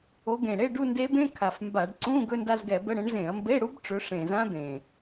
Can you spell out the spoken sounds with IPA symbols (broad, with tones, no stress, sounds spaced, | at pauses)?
o˨˦ ɡ ẽ˨˩ ɽ e˧˥˧ ɖ u˥˧ n d e˦˥ b ẽ˧˥˧ kʰ a˨˩ f m b a˧˩˧ ɖ ǀ ũ˧˥˧ ɡ ɵ˧˥˧ n d a˥˧ z ɡ ɛ˧˩˧ b ə˧˥˧ ɽ ə̃˨˦ ɳ z ẽ˧˩˧ ɐ̯ m b e˧˥˧ ɽ u˦˥ b ʈ͡ʂ ɵ˨˦ ʂ ẽ˨˩ z ã˦˥ d̪ ẽ˨˩